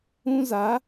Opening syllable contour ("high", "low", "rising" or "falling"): high